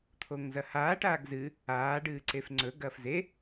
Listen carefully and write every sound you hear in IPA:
t̪ʰ o ŋ z ɐ h aː ʈ aː ɡ z ɨ | aː ɖ ɨː ǀ e f ŋ͡ǀ ɵ ɡ ɐː f z e

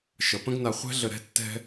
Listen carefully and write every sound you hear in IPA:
ʃ ʌ˩ p ə̃˦ ɡ n a˨ χʷ ɛ̤˥ ɮ ə˨ ɾ ɛ̤˥ tː ɛ̤˦

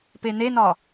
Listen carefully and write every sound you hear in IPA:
p e n e n ɒ

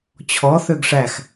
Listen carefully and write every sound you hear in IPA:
t͡ɕʰ ɔ θ ø ɡ ʂ æ x

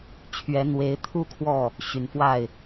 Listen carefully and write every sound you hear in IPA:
t͡ɕʰ ɥ ɛ˧˥ n̪ w e˧˥ ɪ̯ t̪ʰ u˥ kʰ w ɔ˥˩ | ɕ y˨˩ n f w a˥˩ ɪ̯

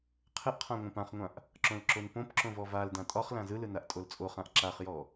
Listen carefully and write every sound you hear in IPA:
qʰ ɘ ʔ qʰ ã ŋʷ ã p ã χ ŋʷ ã ʔ | ǁ õ l ǁ o n p õ p ǁ õ v ɔ v a l d ã tʼ ɒ χ l ã z ɯ l ɯ n a ʔ tʼ o l t͡sʼ o χ ã ʔ ǁ a χ j ɔ

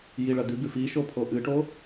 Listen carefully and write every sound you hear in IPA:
j i ɭ ɐ d̪ ʉ ɡ ʉ f i ʃ o pʰ o ʔ ɨ ʈ o

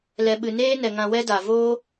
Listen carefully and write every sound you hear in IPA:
l ɛ˨ ɓ ɨ˨ n eː˦ n ɛ˨ ŋ ã˧ w ɛ˦ d a˨ v oː˦

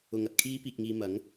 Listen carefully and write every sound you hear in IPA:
ʊ˨˧ ŋ ɐ˧ t̚ kʰ iː˥ p iː˨ k̚ ŋ iː˨ m ɐ˨˥ ŋ

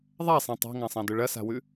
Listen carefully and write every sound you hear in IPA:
ðˤ a sˤ ẽ tˤ a̤ ŋ ã sˤ ã d ɵ ɭ ɐ s a̤ w ʉ

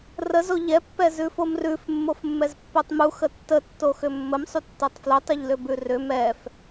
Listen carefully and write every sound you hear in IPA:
r ə z o ʎ ɛ pː ɛ z ʉ f o m r ʉ f mː o f mː ɛ z pː o tˤ m u x ə tː ə tː o x ʏ mː ə m sˤ u tː ɜ tˤ f l ʊ tˤ ʏ ʎ l ʏ b ʉ r ʏ m ɛ f

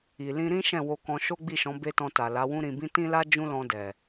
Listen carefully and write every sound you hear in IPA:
i˨ l ĩ˧ ɾ ĩ˦ ʃ ɛ̃˦˨ w o˧ k ɔ̃˧ ʃ o˦ ɡ͡b i˦˨ ʃ ɔ̃˨˦ b e˦ t ɔ̃˧ t a˨ l a˨˦ w ũ˦ ɾ ĩ˧ b ĩ˦ t ĩ˦ l a˦ d͡ʒ ũ˦ l ɔ̃˧ d ɛ˨

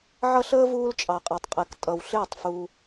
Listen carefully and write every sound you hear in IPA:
ʕ ʌ˦ ɬ əː˦ v uː˦ l t͡ʃʼ ɑ˨ qʼ ʌ˨ tˤ qʼ ɛ˨ k tʼ ʌ˨ w ɬ ɪː˦˨ tˤ f u˧

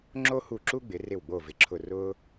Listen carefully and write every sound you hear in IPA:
ŋ͡ǁ o˥ h u˦˨ ǁ u˥ ɡ͡b ɪ˨˦ r ɪ˦˨ w ɡ͡b o˦˨ v ɪ˨˦ ǁʰ ʊ˦˨ r ʊː˥

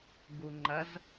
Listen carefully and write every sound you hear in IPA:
ɡ u ŋ͡ǃ ɐ z

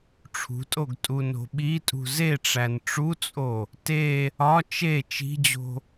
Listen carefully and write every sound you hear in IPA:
ʈ͡ʂʰ ṳ tʼ o ɡ tʼ u n o̤ ɓ i tʼ ṳ z e ʈ͡ʂ æ n ʈ͡ʂ u t͡sʼ o | t e | ɒ t͡ʃ e t͡ʃ i̤ d͡ʑ o̤

